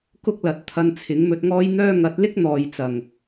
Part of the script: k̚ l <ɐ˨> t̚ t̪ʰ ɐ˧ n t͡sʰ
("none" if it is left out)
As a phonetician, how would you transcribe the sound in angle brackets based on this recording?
ɐ˨˥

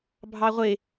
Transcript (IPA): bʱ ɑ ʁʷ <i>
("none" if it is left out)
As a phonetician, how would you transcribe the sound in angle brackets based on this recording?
ɪ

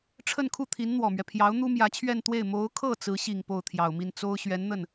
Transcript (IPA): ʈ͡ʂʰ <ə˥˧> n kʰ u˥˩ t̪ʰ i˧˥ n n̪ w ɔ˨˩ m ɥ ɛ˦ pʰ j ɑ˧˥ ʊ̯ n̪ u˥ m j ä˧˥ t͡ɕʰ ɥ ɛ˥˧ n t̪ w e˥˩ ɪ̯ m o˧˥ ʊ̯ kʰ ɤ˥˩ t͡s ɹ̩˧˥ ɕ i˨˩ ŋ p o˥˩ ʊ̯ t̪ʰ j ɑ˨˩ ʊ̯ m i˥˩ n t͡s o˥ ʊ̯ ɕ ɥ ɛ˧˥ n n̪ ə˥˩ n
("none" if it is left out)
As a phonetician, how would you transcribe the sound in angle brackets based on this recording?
ə˥˧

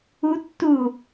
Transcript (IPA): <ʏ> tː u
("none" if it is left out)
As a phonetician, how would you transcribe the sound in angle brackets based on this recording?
u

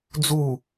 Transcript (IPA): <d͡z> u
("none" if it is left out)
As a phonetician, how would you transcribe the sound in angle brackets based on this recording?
d͡z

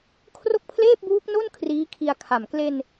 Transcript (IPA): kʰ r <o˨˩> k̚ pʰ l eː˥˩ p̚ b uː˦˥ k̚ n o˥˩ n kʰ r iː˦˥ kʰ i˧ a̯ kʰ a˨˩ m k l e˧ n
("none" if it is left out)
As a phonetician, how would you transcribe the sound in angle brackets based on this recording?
o˥˩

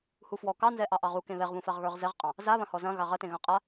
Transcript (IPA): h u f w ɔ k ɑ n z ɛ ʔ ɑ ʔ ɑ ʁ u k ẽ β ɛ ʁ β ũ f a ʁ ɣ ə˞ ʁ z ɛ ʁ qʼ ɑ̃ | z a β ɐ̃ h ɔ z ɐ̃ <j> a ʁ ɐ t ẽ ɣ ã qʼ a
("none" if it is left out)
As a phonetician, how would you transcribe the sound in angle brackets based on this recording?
ɣ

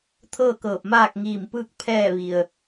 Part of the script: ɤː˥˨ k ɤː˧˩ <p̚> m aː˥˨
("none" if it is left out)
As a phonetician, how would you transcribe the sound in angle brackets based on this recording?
p̚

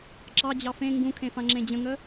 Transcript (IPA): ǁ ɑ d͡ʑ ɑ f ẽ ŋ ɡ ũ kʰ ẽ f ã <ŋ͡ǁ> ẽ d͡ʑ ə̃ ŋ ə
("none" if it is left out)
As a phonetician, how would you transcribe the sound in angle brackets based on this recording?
ŋ͡ǁ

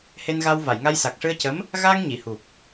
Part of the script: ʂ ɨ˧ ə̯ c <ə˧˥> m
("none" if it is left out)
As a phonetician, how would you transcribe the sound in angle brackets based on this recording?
ə˧˥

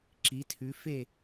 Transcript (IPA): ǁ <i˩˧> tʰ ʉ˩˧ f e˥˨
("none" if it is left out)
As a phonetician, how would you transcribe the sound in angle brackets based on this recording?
i˩˧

